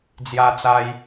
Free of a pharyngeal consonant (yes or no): yes